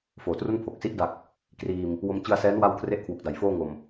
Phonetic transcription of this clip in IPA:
foː˩˦tru˥˩n pʰo˨˩k̚si˦˥ʔda˨˩k̚ | kriː˧m | wo˧mt͡ɕɯ˧a̯sɛː˦˥n wa˥˩wkʰre˥˩ʔkʰwu˨˩k̚da˨˩j foː˥˩ŋo˨˩m

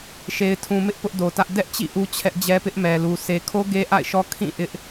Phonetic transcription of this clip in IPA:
ʃe˨ɪ̯tʰũ˨mɪ˦ʔ pʊ˦ʔdo˨tä˦ʔ dɛ˦ʔt͡ɕḭ˦˨ ʔu˦t͡ɕʰɛ˦ʔd͡ʑɛ˦ pɪ˦ʔmɛ˨lu˨ sʰe˨kʰo˦ ɡe˦ʔa̰˦˨ɪ̯ʃɔ˦ kʰĩ˦˨ ʔɪ˦ʔ

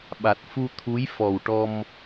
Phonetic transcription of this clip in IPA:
ɓa˨˩t̚fu˧ t̪ʰu˧˥j fɔ˨˩w ʈɔ˧m

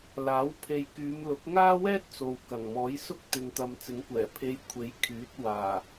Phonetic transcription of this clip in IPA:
laː˨˥wpʰe˨jkyː˨˧mlʊ˨˥k̚ ŋaː˥wɛː˥t̚ t͡so˨w kɐ˨˩ŋmɔː˨˥jsʊ˥k̚ t̪ɪ˨ŋt̪ɐ˨m t͡sɪ˨˥ŋkʷɛː˨˩ pʰe˧j kʷʰe˨˥j kʰyː˨˥t̚waː˨˩

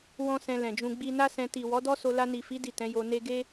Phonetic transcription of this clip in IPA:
wɔ̃˦sɛ̃˧lɛ̃˨d͡ʒũ˧ ɡ͡bi˧na˦sɛ̃˧ ti˨ wɔ˨˦dɔ˦so˧ la˧ni˨fi˨˦ di˦˨tɛ̃˨˦ jo˧ ne˧ ɡe˦

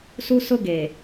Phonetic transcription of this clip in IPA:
su˦sʊ˦ɡe˨

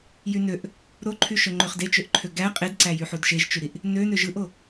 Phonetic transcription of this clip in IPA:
jynøʔ | ɾoǃʰyʃø ŋ͡ǃøχdet͡ʃøʔǃʰø ɡæ qʼedǀæjy ħudʃeʒt͡ʃyɾiʔ | nønø ʒɯʔo

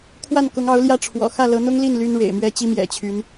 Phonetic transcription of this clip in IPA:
kʰwa˥˩nkʊ˧˥ŋɑ˧˥ʊ̯ ljä˥˩ʈ͡ʂʰwɔ̰˨˩ xä˥˩lɤ˧˥n̪ʊ˥ŋli˥˩n ly˥nɻḛ˨˩ɪ̯mɥɛ˥t͡ɕi˥ mjɛ̰˨˩t͡ɕʰy˧˥n

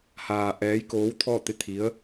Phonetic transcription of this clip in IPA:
haː˧ ʔɛː˧˥jkoː˧˥wt̪ʰɔː˥˨t̪e˥˨ t̪ʰi˧˥ə̯

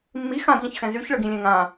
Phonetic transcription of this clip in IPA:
mːi xãdʎə̃çxɛ̃ zyçɭəɡĩlʲɛ̃ ŋã

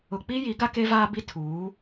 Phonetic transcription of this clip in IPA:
ʊ˨k͡pi˦ji˨˦ ɡa˦ke˦vaː˦bi˦ tʰuː˨˦

